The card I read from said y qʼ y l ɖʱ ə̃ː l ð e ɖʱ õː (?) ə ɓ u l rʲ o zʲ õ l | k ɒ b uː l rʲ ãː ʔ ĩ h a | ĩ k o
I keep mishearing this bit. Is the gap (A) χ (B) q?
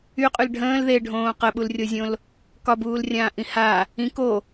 B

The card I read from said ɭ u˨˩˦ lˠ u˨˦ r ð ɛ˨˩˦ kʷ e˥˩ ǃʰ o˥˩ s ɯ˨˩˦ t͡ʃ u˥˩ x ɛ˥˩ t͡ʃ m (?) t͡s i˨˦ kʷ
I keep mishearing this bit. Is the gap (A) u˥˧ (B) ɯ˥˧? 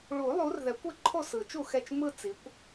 B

